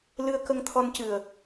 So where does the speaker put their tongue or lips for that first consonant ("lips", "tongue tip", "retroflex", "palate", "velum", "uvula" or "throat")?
tongue tip